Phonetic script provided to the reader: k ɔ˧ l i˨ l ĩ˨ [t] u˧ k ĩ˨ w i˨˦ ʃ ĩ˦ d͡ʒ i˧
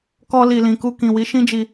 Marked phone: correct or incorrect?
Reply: incorrect